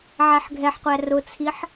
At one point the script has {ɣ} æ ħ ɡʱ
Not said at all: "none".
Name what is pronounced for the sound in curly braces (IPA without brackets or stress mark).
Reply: ʕ